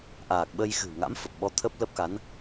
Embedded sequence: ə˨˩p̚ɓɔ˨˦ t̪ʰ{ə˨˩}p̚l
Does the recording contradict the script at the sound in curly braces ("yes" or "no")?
yes